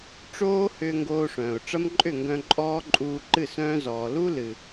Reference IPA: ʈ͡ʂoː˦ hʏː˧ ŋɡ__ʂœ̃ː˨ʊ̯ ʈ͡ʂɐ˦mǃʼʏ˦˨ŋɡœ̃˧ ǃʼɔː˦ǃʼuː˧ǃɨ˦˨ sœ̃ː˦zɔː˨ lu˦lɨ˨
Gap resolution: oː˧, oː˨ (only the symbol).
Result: oː˧